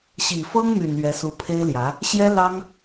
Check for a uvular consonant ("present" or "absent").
absent